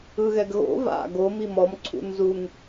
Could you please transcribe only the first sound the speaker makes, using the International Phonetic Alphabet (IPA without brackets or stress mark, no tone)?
ɯ